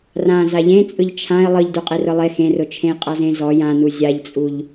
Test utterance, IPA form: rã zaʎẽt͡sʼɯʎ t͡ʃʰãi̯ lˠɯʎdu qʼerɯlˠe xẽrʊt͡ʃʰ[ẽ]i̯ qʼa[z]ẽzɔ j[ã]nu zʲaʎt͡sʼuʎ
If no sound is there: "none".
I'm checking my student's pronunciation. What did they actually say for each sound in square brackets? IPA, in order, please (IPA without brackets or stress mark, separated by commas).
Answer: ẽ, z, ã